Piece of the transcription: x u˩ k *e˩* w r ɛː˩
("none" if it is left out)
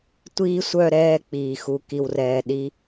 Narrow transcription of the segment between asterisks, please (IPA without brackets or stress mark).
i˩